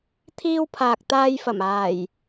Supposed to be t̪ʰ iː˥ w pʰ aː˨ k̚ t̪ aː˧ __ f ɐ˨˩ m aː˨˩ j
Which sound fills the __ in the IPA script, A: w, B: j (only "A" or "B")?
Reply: B